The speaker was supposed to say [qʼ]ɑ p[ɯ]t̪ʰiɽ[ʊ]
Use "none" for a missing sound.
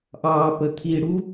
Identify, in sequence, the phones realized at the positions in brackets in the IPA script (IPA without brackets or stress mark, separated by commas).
ʔ, ə, u